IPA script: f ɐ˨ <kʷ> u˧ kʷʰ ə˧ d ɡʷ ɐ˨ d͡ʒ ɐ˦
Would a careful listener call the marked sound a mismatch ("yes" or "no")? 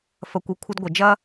no